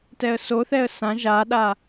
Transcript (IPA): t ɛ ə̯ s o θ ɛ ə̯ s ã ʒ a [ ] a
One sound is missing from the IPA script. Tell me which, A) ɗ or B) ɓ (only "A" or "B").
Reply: A